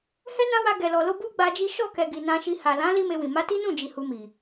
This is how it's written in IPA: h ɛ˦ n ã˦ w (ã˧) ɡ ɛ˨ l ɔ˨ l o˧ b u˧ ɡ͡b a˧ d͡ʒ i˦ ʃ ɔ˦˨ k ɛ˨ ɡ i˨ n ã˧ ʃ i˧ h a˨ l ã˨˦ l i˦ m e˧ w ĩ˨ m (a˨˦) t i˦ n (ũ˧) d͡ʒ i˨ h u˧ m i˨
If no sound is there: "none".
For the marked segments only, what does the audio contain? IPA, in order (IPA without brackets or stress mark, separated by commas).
a˧, a˨˦, ũ˦˨